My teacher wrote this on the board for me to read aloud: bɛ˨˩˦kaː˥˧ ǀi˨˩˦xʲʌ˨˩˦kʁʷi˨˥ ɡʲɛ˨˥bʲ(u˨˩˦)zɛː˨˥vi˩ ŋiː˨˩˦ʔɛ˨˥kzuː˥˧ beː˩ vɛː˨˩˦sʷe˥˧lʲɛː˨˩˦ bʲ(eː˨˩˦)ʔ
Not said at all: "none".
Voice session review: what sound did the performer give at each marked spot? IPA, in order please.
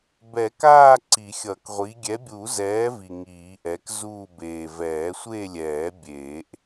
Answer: u˨˩˦, eː˨˩˦

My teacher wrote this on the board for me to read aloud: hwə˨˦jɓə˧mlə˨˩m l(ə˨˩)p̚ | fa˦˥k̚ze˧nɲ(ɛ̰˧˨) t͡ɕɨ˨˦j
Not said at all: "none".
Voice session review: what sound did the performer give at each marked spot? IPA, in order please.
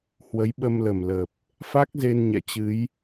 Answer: ə˨˩, ɛ̰˧˨

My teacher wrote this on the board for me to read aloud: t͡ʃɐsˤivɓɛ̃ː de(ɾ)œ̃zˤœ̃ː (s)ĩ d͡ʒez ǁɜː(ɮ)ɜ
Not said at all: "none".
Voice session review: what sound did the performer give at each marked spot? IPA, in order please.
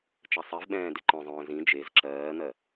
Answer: ǃ, z, n̪

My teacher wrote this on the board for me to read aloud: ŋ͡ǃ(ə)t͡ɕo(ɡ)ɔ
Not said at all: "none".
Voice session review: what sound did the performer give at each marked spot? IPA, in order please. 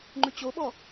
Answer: ʉ, ɓ

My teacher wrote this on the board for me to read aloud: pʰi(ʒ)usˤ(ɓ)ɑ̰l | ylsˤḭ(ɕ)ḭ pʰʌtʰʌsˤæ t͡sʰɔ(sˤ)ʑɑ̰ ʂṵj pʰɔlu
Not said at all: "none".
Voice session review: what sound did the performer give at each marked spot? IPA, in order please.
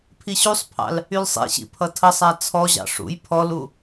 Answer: ɕ, pʰ, ɕ, none

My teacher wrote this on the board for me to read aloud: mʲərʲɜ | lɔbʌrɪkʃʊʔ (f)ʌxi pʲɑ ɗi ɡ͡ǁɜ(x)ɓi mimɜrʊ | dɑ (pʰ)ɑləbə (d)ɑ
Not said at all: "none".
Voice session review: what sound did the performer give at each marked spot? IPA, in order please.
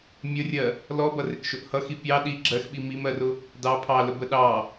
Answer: h, x, pʰ, ɗ

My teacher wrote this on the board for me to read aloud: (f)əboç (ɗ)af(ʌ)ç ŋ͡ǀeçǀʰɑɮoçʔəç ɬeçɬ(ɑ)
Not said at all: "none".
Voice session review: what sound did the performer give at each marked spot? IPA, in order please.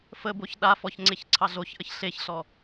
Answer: f, ɗ, ɔ, ɔ

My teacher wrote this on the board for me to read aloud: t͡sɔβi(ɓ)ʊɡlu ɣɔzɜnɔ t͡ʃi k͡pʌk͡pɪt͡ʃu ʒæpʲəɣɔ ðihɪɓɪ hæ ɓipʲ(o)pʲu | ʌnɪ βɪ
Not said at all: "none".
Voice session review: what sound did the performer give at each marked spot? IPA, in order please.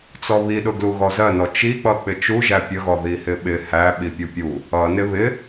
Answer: ɗ, u

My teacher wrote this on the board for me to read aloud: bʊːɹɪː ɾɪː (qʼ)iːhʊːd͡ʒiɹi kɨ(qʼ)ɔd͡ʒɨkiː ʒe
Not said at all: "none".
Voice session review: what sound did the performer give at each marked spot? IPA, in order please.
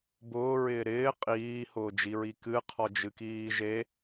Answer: qʼ, qʰ

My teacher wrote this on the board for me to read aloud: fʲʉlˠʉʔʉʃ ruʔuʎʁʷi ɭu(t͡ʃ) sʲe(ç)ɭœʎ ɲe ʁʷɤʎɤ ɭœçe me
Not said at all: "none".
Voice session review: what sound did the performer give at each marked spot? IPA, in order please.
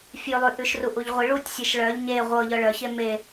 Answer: tʲ, ʃ

